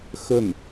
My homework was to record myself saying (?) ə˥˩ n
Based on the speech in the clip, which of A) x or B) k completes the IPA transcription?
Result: A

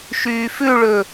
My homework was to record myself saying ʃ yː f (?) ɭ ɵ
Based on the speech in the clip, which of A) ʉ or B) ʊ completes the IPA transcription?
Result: A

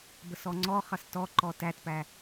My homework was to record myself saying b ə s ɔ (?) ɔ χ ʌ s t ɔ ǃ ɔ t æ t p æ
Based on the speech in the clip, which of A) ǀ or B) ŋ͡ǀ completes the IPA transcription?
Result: B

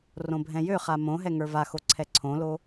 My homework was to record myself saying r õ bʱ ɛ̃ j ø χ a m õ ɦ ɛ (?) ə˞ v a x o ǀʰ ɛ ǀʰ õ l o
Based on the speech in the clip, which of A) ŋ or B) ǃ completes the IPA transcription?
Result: A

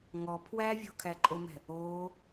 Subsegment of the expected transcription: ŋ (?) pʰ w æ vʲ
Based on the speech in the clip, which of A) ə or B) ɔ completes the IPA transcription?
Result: B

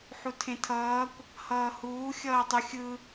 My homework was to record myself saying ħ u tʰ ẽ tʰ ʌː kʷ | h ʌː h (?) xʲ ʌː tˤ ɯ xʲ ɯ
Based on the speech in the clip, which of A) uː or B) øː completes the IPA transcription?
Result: A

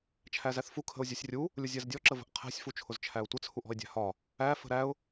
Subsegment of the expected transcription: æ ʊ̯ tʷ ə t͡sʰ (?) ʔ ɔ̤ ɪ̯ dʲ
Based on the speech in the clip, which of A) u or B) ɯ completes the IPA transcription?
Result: A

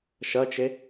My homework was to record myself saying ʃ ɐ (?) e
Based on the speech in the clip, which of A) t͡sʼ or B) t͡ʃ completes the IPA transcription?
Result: B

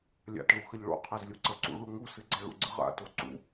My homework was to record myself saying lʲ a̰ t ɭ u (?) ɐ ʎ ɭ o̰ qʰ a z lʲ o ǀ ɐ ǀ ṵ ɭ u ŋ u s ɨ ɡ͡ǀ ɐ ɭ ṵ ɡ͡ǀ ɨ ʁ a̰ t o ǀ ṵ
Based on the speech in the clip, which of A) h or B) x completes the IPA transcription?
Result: B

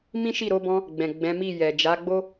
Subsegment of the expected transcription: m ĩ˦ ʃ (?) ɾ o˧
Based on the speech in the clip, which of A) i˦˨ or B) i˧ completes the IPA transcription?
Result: A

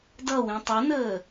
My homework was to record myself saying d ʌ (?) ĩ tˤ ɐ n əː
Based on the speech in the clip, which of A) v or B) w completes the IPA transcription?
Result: B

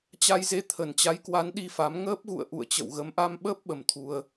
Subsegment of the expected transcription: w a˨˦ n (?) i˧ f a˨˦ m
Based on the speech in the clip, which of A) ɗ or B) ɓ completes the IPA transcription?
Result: A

